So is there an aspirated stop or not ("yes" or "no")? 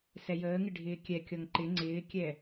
no